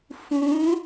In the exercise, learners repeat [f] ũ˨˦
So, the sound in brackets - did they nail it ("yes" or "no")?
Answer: yes